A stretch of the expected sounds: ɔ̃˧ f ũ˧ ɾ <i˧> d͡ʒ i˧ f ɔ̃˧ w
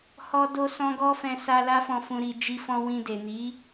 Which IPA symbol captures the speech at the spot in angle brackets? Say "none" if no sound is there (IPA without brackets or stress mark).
i˧